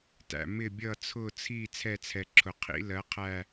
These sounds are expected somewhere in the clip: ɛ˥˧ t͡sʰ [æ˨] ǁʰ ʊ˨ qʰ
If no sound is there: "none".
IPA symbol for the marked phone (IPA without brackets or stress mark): ɛ˨